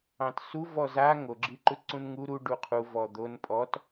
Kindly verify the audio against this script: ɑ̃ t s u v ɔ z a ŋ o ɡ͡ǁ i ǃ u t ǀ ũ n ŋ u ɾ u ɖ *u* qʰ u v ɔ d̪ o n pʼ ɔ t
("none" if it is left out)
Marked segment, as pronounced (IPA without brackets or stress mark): u